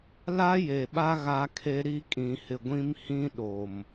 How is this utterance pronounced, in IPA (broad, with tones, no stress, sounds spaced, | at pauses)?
l a˦ j e˨ ɓ a˦ ɣ a˦ kʰ e˦ ɾ i˦ kʼ ĩ˨ h ɪ˨ ɡʷ ĩ˦ m h ĩ˦ ɗ o˨ m